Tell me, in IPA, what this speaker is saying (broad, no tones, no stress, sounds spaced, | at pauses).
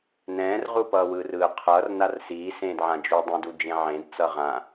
n ɛ̃ː r ʁ u p ʌː w ɯː r ɯː qʰ ʌː r n a r s iː s ẽː d ʕ ã d͡ʒ u dˤ ĩ d u d͡ʒ ẽ ʕ ẽ d t͡s ʌ ʁ ã